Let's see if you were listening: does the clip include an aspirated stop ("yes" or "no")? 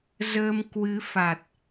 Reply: no